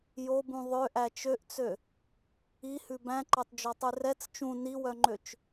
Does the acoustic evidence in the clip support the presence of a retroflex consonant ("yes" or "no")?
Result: no